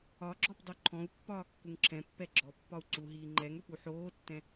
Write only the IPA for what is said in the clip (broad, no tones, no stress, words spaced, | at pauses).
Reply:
ɒɡ͡ǁɔp dˤoǃʰɔ̃u̯pːɒː kːuŋǁʰɛ̃pːɛ ɡ͡ǁɔpːɒu̯ ǀuɦiː ŋ͡ǃɛŋøp uħoːtːɛ̃